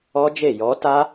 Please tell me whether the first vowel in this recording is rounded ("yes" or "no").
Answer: yes